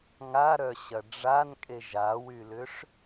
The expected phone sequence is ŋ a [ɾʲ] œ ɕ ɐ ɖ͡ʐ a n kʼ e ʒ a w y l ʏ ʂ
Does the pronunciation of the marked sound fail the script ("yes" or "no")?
yes